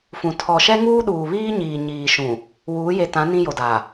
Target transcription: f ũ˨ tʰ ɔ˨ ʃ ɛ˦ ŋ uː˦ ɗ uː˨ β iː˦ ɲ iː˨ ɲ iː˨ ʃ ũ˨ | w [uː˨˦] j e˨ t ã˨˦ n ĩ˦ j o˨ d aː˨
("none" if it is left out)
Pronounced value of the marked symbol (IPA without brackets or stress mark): uː˨˦